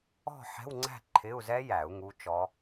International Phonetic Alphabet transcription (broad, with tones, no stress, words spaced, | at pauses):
ɔ̤˥˨ħɛ̤˧˥˧wŋ͡ǀæ̤˥˨ ǃʰɪ˧˥˧u̯ zɛ˦˥jæ˨˩˦u̯ ŋu˧˥˧t͡ʃɔ˦˥